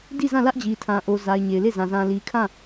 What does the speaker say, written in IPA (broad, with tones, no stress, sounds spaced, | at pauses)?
d i˦˨ z ã˦˨ l ä˦ ʔ d͡ʑ i˨ tʰ ã˨ ʔ o˨ z a˨ ɪ̯ ɲ e˨ ɪ̯ l e˦˨ z ã˨ z ã˨ l i˨ kʰ ã˦˨